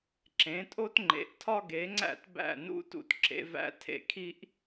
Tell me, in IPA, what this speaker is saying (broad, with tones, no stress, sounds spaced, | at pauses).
ǁ ẽ˩˥ tʼ o˥ t ŋ͡ǃ ḛ˩˥ ʔ tʰ ɒ˥ ɡ e˩˥ ŋ͡ǀ æ̰˥˩ t b æ̰˥˩ n ṵ˥ t ṵ˧ t ǁ ḛ˧ v æ̰˥ tʰ ḛ˩ kʰ i˥ ʔ